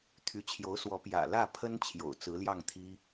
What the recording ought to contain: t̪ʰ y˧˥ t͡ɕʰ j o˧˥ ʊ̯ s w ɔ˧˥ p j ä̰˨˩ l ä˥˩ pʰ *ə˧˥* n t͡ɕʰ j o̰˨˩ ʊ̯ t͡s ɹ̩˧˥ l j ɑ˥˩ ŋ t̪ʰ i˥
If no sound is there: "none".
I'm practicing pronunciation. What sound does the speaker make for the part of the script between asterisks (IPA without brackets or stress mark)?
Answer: ə˥